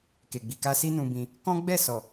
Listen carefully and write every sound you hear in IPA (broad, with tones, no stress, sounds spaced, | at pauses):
k e˨ ɡ͡b i˨ k a˧ s i˦ n ũ˧ b ĩ˧ | k ɔ̃˦ ɡ͡b ɛ˦˨ s ɔ˨